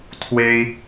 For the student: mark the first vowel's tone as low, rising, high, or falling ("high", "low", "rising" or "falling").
high